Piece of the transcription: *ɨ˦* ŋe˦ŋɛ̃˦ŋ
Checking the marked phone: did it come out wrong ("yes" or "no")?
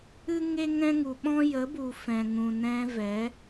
no